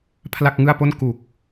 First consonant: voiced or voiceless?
voiceless